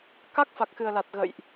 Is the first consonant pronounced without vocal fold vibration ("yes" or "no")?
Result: yes